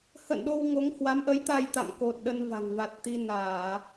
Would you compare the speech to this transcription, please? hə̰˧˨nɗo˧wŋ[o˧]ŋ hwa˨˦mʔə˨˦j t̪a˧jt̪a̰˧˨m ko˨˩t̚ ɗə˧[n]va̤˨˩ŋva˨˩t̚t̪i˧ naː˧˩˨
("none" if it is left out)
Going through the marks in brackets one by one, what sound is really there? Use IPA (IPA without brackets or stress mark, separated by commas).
o˨˦, n